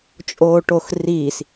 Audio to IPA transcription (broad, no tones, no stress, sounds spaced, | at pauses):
t͡ʃʼ oː ʈ o x r iː s